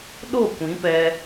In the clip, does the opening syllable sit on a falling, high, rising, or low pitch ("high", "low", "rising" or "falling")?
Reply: falling